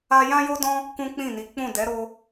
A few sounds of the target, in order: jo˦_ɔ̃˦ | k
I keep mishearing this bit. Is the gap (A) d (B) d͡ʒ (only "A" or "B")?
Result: A